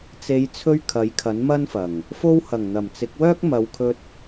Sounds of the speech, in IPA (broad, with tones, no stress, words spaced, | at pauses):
t͡se˨˧jt͡sʰɵ˧ɥ kʰɐ˨˥jkʰɐ˨˥nmɐ˥nfɐ˨˩ŋ | fo˧whɐ˨˩ŋn̪ɐ˨˩m t͡sɪ˨˥k̚ wœː˥k̚mɐ˨˧w kʰɵ˧t̚